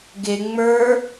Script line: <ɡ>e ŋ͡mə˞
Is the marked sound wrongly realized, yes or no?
no